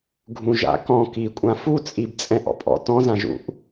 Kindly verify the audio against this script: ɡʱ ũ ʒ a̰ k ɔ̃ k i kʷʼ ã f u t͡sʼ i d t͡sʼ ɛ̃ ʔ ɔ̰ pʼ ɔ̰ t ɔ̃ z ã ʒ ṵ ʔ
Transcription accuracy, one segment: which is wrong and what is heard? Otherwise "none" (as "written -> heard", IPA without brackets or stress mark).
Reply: d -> b